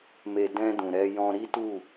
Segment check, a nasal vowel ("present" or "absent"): present